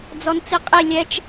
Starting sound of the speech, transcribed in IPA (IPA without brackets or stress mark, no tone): d͡z